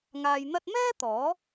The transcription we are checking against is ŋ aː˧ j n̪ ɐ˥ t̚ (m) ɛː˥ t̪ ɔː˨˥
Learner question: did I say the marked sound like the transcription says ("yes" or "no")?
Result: yes